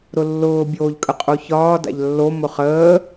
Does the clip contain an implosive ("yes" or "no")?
no